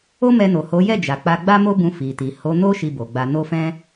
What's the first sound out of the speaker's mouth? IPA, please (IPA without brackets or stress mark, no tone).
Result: o